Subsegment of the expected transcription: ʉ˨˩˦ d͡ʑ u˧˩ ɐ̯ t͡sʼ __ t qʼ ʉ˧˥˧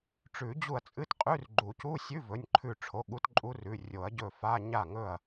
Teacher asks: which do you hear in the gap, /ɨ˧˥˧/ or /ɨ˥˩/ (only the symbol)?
ɨ˧˥˧